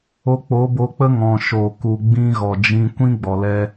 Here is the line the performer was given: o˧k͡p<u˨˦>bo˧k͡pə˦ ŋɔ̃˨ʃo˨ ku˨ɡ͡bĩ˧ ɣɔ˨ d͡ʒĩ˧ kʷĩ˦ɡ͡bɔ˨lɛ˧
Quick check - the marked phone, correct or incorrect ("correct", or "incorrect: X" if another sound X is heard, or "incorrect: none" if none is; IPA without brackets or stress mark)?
incorrect: o˨˦